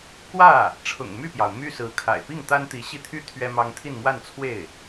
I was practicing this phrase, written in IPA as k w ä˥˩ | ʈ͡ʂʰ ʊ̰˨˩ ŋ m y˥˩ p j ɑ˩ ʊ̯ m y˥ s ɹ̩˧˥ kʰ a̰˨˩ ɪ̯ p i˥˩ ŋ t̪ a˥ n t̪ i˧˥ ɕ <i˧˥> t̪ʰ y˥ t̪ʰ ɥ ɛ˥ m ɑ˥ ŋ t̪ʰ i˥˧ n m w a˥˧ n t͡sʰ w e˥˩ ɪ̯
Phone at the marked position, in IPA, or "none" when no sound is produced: i˥˩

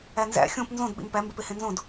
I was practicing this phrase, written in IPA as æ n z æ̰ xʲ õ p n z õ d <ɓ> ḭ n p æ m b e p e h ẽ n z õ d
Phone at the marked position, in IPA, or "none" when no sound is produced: ɓ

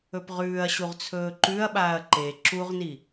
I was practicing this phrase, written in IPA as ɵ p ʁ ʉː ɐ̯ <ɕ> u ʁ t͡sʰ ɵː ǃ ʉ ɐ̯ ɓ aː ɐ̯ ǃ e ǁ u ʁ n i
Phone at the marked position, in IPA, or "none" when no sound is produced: ɕ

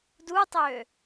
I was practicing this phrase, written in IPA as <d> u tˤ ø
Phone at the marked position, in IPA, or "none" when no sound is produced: d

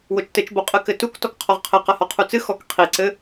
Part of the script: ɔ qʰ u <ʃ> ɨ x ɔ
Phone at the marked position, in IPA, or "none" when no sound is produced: t͡s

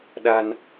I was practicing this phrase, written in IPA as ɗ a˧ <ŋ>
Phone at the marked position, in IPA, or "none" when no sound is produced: n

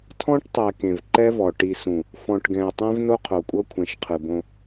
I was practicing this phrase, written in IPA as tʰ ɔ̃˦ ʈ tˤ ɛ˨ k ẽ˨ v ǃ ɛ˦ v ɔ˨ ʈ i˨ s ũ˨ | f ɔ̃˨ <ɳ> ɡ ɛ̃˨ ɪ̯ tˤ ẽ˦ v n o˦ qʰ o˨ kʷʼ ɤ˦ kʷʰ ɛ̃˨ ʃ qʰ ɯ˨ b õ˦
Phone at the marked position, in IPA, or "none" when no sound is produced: ʈ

